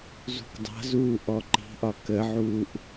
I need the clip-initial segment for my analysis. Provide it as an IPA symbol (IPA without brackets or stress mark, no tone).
z